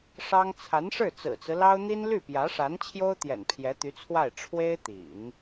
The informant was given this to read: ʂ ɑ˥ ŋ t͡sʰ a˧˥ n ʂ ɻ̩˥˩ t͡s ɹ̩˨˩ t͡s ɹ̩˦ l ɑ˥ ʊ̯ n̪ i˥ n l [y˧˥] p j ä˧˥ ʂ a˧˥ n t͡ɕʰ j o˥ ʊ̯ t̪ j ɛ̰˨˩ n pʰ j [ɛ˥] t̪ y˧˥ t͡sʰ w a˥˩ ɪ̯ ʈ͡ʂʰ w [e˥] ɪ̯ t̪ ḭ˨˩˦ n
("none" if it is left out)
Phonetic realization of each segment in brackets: y˥˩, ɛ˧˥, e˥

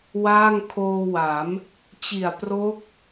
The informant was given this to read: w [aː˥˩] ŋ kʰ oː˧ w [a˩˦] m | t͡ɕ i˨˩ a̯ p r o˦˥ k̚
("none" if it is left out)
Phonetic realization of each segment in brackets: aː˥˩, a˩˦

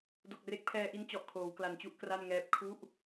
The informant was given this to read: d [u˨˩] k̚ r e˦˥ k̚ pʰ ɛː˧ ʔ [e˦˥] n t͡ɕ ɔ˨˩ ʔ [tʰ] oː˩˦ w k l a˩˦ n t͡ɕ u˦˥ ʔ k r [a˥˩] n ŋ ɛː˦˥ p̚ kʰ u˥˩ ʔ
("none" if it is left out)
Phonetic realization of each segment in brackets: o˨˩, i˦˥, kʰ, a˥˩

